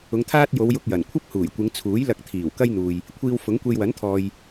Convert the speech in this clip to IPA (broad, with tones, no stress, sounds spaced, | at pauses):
ʊ˨˧ ŋ t̪ʰ aː˥ t̚ j o˨˧ w j ʊ˧ k̚ j ɐ˨˩ n kʷʰ ɐ˥ p̚ h uː˨˩ j kʷ ɪ˨˧ ŋ t͡sʰ uː˨˥ j l ɐ˧ k̚ t̪ʰ iː˨˩ w k ɐ˥ j n̪ uː˨ j | kʷʰ iː˧ w f ʊ˨˥ ŋ kʷ e˧ j w ɐ˨˥ n t̪ʰ ɔː˨ j